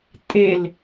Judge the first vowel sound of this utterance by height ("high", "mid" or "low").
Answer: mid